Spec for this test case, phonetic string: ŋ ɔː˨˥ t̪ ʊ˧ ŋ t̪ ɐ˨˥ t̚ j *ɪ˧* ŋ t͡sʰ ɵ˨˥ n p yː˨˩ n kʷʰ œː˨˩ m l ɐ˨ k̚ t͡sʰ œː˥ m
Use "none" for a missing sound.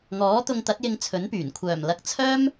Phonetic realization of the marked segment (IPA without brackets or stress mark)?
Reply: ɪ˧